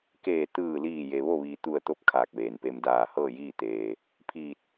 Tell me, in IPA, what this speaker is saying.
k eː˧˩ t̪ ɯː˧˩ l iː˧˩ j e˩ ʋ o˥˨ ʋ iː˩ t̪ u˧˩ ə̯ t̪ o˧ p̚ kʰ aː˧˩ k̚ ʋ eː˩ n p e˧ m d aː˧˩ h ɤː˥˨ j iː˥˨ t̪ eː˩ | pʰ iː˧˩ t̚

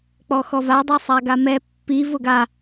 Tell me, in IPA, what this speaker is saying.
k͡p ɔ x ɔ v a dˤ e sˤ a ɡ a m ɛ pː i v ʊ ɡ a

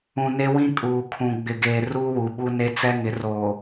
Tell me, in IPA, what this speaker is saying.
ũ˨ n e˦ w ĩ˦ kʼ uː˨ kʰ ũ˨ ɡ͡b ɪ˨ ɡ eː˨ r uː˦ w u˨ ɓ u˦ n e˦ t͡s ɛ˦ ŋ ɪ˨˦ r oː˨

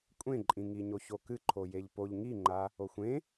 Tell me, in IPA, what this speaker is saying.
kʷʼ ẽ ǃʼ ĩ ŋ i ɲ o ç o k ɨ ǃʰ o j e ʎ p o ʎ ŋ i ŋ͡ǃ a | o xʷ ẽ

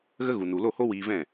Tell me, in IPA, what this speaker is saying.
ɣ ə˦ ɣ u˨ n u˨ l o˦˨ h o˦ w iː˧ v ɛ̃˦˨

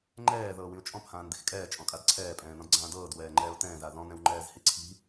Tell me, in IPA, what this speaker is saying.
ŋ͡ǃ ɛː ð ɤː w ĩ ʊ̯ t͡ʃʼ ɔ̃ p h ãː n d̪ i̤ x kʼ ɛː t͡ʃʼ ɔ̃ kʼ a d ǀʰ ɛː pʼ ɛ̃ː n ɔ̃ d ɡ͡ǀ ãː d ɤː d w ɛː ŋ͡ǃ ɛː ʊ̯ t̪ ɛ̃ː z a ð ɔ̃ n ɛ̃ w ŋ͡ǃ ɛː z h i ǀʰ i̤

